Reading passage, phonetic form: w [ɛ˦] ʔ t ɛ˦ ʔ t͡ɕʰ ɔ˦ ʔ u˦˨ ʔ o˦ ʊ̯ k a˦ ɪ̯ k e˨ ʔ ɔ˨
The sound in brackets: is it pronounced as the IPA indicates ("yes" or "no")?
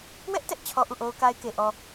yes